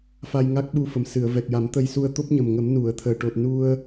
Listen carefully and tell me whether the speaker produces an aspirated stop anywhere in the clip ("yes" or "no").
yes